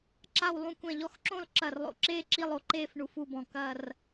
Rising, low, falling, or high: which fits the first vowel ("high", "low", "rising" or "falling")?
falling